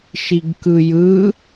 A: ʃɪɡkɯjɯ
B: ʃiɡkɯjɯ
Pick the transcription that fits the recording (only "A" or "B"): B